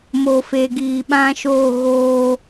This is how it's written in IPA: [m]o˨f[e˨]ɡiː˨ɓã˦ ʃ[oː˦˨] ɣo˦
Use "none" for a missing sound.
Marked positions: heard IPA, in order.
m, e˨, oː˦˨

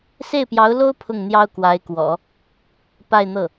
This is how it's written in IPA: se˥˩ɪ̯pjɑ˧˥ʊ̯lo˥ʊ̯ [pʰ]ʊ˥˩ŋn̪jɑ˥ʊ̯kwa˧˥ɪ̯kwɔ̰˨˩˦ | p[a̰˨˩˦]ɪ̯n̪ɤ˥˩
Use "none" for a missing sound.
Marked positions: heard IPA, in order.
pʰ, a˥˧

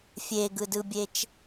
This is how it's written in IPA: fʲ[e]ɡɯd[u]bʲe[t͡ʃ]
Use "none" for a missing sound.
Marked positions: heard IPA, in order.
e, ɯ, t͡ʃ

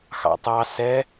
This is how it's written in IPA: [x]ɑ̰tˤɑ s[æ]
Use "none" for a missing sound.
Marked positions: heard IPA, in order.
x, ɛ

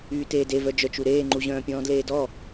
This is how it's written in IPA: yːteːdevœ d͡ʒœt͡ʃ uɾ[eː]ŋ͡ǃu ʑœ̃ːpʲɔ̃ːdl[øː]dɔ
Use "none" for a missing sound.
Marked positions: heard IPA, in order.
eː, eː

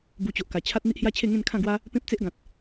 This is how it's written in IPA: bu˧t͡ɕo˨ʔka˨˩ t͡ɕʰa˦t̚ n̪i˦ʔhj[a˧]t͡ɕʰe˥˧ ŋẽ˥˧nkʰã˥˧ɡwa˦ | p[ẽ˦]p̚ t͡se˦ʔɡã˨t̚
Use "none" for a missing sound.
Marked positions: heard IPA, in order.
a˦, ẽ˦

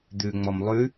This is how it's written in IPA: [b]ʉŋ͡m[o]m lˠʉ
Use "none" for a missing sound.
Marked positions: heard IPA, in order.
d̪, ɔ

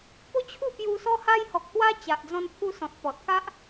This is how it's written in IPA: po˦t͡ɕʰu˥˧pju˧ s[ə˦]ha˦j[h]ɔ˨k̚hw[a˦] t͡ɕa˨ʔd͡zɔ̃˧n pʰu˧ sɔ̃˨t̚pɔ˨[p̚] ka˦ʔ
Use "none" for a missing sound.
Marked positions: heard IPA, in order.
ɔ˦, h, a˦, t̚

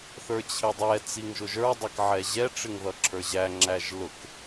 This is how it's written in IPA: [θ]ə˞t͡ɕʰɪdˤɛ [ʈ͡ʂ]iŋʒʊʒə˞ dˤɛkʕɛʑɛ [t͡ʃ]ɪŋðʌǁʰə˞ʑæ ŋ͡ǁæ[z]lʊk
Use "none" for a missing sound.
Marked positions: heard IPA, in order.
θ, t͡s, ʈ͡ʂ, ʒ

